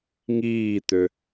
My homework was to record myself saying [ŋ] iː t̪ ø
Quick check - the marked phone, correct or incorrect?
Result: correct